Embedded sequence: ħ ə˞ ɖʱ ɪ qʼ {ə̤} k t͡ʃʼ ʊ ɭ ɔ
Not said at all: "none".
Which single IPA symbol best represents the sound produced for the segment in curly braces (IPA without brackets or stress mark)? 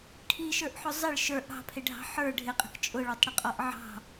ə̤